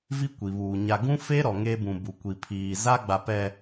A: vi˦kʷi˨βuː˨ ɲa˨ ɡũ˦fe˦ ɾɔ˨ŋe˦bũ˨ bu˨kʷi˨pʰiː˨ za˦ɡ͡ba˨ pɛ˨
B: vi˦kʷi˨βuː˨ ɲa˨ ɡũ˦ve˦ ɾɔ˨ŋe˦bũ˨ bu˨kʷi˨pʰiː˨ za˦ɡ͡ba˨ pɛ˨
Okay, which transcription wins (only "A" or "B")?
A